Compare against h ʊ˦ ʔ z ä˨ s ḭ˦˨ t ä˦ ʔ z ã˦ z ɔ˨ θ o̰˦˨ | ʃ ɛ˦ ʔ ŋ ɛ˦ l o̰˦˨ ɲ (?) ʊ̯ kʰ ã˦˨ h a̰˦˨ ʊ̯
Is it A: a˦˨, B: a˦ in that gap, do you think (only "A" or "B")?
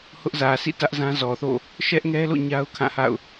B